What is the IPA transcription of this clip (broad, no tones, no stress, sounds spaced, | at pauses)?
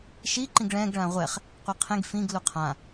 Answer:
ʃ i ǃ ĩ ɡ ɭ ɛ̃ ɡ ɭ ã ʁʷ ɛ χ | qʷ e qʰ ẽ ɡ f ĩ ɡ l u qʰ ã